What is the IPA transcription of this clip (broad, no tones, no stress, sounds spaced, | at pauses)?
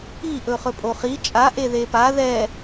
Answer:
i ʔ ɵ χ ɵ pʼ o χ i t͡ʃʼ a ʔ e ð e p a ð ɛ